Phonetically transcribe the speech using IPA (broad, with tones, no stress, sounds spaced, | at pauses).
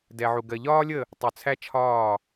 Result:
d ɛ˧ ʕ u˧ ɡ ɜ˧ ʎ ɒː˥ lʲ ə˥˧ | tˤ u˧ t͡sʰ æ˥ t͡ʃʰ ɒː˥˧